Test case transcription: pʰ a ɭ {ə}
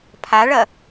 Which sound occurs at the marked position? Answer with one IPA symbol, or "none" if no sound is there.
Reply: ɐ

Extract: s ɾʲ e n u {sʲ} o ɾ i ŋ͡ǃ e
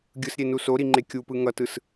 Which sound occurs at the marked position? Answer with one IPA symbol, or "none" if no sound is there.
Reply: s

